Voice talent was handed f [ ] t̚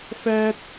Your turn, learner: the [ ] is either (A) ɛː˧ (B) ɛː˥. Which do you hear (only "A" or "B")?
B